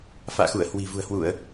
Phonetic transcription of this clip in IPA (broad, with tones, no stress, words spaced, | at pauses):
fa̰ː˧˨xu˧˩ə̯hwi̤˨˩ vṳ˨˩ə̯hwu˧˩˨ə̯